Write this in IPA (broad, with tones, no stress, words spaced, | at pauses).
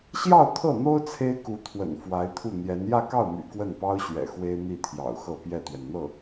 ɕjɑ˥˧ʊ̯ t̪ʰɤ˥˩n̪o˥ʊ̯ t͡sʰe˥ɪ̯ku˧˥t̪ʰwə̰˨˩n fwa˧˥ɪ̯t̪ʰu˥˩n̪jɛ˧˥n jä˥˧kɑ˥˩ʊ̯my̰˨˩ kwə˥˩npɑ˥ʊ̯ɕɥɛ̰˨˩ xwe˥ɪ̯n̪i˥˩t̪ʰjɑ̰˨˩ʊ̯xɤ˥˧ pjɛ˥˩t̪ɥɛ˩nn̪ɤ˥˩